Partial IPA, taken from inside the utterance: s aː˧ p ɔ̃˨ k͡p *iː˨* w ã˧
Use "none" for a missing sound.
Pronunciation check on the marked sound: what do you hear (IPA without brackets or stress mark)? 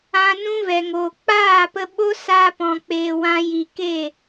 eː˨